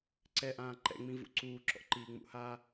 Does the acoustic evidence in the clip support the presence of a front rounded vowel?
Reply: no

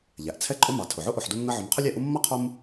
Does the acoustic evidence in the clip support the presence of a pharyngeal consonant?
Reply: yes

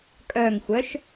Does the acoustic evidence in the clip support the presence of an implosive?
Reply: no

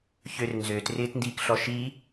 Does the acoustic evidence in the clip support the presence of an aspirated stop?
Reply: no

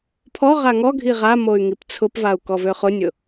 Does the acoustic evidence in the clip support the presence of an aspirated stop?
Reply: yes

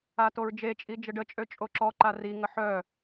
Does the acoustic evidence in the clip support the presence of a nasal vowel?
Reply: no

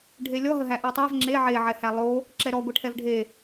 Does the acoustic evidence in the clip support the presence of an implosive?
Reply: no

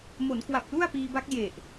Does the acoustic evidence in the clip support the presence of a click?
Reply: no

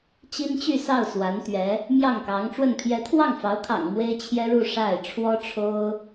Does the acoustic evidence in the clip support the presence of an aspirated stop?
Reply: yes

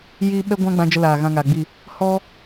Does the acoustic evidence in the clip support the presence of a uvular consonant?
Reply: no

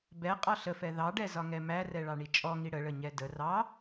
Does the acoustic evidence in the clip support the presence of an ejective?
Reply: yes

